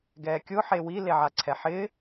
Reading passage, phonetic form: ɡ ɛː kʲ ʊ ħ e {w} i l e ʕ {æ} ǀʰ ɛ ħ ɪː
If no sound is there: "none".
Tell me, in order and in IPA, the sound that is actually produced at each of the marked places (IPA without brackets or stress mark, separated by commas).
w, a